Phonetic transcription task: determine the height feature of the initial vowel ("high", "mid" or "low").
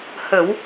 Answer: mid